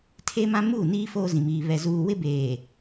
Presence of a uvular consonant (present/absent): absent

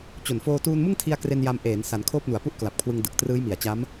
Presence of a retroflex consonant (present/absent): absent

